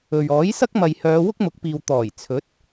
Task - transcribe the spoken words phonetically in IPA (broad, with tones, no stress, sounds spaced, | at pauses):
ɵ˨ ɥ ɔː˨˥ j s ɐ˥ k̚ m ɐ˨ j h œː˨˧ w ʊ˥ k̚ m ʊ˨˥ k̚ p iː˨ w t̪ ɔː˨˩ j t͡sʰ ɵ˨˥ t̚